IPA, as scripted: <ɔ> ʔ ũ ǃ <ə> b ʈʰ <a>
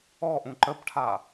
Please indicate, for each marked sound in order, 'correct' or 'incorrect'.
correct, correct, correct

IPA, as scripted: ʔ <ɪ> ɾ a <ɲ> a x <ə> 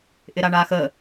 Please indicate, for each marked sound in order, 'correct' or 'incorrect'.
correct, incorrect: ɳ, correct

